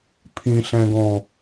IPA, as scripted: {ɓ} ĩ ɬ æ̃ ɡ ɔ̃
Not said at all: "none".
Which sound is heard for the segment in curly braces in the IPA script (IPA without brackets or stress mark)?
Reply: pʰ